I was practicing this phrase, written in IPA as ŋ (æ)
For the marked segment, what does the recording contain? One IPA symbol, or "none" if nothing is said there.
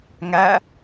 æ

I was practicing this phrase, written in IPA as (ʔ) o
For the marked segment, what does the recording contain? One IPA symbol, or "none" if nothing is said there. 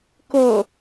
k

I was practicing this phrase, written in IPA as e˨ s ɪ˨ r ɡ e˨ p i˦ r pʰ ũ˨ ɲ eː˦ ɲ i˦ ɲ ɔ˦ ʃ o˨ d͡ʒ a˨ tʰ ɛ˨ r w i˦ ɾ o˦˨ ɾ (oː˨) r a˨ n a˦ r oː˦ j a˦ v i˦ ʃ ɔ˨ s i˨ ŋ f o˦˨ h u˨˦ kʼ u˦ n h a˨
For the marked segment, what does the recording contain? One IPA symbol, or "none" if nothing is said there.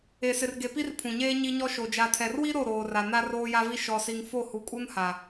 oː˨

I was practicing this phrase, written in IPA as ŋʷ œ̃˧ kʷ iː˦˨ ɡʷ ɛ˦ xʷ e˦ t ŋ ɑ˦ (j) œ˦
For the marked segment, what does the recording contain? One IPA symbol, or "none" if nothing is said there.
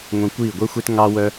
w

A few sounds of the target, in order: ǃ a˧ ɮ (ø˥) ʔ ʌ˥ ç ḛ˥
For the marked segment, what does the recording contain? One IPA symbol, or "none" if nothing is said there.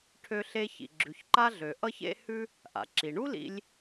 ø˩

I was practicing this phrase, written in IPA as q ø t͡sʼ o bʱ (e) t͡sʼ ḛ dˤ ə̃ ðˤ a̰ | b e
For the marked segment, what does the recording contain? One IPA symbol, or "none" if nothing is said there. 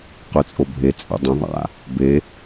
e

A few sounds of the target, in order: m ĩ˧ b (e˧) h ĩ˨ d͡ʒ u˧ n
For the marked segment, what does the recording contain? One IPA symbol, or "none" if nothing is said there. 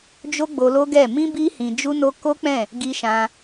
i˧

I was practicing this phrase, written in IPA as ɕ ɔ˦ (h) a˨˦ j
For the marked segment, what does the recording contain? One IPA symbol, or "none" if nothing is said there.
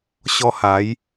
h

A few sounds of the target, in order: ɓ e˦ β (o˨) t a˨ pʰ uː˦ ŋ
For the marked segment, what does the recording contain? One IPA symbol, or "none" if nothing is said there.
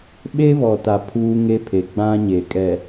ɔ˨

